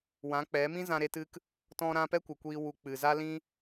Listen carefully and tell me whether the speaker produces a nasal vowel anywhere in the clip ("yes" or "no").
yes